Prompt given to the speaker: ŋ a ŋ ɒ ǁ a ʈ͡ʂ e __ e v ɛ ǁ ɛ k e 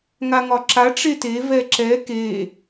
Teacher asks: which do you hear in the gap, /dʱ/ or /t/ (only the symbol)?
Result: t